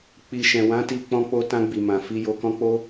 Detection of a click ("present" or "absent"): absent